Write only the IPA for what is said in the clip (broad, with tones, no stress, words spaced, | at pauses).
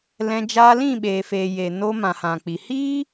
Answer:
lɛ̃˧ d͡ʒaː˧lĩ˦˨ɓeː˨feː˨ jeː˨noː˧mã˨ hã˨k͡pi˨ hiː˦